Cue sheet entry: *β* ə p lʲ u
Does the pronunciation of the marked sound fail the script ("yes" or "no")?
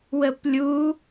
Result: yes